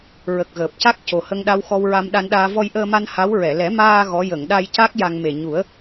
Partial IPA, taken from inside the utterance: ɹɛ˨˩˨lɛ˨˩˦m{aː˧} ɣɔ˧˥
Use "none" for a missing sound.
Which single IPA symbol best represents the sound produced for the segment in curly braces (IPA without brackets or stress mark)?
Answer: aː˧